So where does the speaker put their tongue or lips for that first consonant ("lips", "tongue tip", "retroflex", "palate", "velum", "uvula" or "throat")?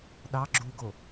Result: tongue tip